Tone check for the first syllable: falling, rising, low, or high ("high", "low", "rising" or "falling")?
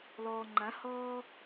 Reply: low